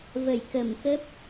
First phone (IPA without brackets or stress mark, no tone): v